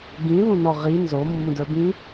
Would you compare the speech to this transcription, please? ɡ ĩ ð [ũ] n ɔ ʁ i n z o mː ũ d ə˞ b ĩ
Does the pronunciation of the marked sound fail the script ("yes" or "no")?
no